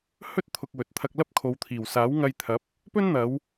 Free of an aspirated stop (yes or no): no